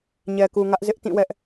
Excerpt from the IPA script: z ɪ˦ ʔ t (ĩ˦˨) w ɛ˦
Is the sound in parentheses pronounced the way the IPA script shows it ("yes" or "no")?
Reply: yes